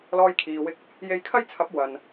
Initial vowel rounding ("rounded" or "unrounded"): rounded